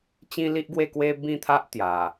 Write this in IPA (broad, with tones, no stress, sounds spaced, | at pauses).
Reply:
t͡ɕ ĩ˦ l i˦ ʔ ɡ w e˥˧ k w e˦ b ĩ˥˧ t̪ʰ a˦ ʔ t̪ j a˨˩